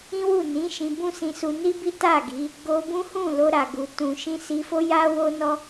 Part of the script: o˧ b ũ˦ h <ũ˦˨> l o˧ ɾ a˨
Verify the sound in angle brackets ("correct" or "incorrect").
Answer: correct